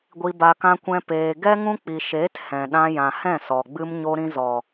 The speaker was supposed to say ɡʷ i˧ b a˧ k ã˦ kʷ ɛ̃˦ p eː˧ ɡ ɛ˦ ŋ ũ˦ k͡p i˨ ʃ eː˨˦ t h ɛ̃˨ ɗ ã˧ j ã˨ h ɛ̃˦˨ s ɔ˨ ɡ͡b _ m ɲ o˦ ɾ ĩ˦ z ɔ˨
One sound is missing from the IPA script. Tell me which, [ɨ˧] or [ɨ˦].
ɨ˦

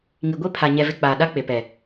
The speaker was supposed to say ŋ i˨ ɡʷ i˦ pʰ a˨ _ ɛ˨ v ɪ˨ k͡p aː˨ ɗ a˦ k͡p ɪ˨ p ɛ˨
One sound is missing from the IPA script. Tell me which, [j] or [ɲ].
ɲ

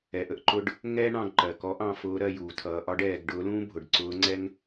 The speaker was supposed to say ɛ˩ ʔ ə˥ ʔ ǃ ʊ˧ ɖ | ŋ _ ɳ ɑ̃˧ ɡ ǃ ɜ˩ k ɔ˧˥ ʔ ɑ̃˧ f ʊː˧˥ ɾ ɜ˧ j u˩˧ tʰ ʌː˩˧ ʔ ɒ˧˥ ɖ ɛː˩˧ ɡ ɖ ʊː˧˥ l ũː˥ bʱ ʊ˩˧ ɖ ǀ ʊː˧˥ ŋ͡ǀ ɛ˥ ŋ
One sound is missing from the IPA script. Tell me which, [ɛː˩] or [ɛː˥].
ɛː˥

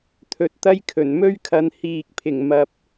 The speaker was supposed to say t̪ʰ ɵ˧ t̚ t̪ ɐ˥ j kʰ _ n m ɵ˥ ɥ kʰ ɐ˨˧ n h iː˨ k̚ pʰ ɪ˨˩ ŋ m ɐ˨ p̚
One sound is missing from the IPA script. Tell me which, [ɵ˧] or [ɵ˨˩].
ɵ˨˩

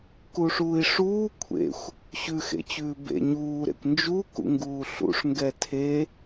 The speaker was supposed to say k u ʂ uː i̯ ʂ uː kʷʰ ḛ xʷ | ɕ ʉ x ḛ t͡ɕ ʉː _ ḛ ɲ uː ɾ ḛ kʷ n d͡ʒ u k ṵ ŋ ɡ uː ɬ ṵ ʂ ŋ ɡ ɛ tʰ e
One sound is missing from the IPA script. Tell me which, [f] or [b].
b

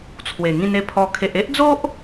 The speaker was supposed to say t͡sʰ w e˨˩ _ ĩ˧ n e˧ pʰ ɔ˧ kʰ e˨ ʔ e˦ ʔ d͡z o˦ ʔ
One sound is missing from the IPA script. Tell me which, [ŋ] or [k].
ŋ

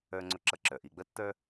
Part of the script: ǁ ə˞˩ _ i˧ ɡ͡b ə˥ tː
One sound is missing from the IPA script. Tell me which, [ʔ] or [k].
ʔ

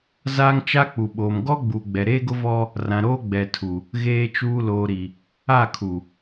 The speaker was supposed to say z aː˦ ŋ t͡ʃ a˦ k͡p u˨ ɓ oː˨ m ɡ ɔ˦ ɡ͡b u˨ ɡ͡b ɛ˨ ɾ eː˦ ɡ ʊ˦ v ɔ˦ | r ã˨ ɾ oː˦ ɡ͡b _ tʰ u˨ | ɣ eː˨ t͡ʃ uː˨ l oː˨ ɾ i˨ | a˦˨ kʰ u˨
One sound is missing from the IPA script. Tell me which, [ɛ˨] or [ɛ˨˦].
ɛ˨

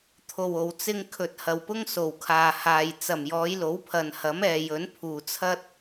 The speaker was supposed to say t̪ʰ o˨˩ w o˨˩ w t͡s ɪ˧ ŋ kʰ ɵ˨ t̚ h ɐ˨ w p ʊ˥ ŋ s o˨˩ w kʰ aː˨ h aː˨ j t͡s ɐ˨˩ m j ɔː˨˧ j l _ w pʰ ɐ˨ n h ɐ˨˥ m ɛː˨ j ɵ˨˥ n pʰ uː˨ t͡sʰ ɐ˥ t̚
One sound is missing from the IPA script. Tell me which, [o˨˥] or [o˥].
o˨˥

